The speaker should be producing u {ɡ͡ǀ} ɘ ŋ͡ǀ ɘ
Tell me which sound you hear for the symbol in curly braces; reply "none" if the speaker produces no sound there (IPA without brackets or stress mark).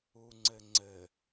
ŋ͡ǀ